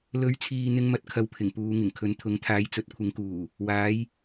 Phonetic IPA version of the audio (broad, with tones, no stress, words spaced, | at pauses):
lɵ˨˥ɥt͡sʰiː˨ n̪ɪ˥ŋ mɐ˧t̚ kʰɐ˨wpʰɪ˨˩ŋ puː˨˧ ŋɪ˨˩ŋkʰɵ˨˥n t̪ʰʊ˨˥ŋt̪ʰaː˨˥j t͡sɵ˨˥t̚kʷʰɪ˨˥ŋkuː˨˩ | waː˨˥j